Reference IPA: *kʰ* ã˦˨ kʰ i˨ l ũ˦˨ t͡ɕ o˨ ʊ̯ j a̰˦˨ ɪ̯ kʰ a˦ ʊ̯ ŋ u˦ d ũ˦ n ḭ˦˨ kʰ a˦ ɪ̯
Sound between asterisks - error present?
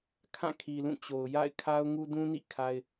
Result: no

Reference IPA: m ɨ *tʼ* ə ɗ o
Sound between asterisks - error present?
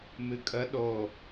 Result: yes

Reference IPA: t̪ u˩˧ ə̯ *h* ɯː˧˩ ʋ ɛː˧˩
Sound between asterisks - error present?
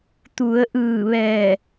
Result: yes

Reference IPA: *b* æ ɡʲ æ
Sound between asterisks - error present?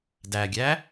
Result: yes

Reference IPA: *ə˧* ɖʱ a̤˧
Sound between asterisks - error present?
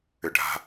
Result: yes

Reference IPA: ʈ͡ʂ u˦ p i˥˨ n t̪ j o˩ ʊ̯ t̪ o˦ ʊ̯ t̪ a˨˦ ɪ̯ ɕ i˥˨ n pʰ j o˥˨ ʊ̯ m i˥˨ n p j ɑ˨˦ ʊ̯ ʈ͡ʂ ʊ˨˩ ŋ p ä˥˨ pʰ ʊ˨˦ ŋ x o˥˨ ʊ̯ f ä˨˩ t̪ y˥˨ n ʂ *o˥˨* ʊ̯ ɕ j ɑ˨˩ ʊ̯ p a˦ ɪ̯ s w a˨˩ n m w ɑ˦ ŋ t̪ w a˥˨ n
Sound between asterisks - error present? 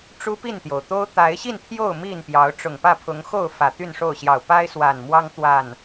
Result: no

